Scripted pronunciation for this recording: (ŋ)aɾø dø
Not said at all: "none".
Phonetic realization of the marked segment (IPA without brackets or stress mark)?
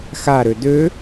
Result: x